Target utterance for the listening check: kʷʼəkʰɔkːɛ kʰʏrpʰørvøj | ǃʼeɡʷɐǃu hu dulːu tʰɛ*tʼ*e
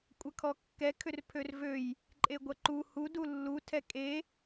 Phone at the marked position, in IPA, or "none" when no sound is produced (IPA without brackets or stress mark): kʼ